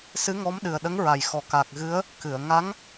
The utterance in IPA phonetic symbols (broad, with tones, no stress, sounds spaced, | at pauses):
s ɨ˧˥ ŋ ɔ˧˥ m ɗ ɨ˨˩ ə̯ ɗ ə˧˥ ŋ ɹ a˨˩ j x ɔ˨˩ k a˨˩ k̚ ɣ ɨ˧˥ ə̯ | k ɨ˨˩˨ ə̯ ŋ a˧˥ ŋ